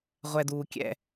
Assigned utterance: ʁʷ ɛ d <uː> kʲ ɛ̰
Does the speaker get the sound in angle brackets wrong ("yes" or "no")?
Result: no